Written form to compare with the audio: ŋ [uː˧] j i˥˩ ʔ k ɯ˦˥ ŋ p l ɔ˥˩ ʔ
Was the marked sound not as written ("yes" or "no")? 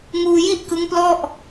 no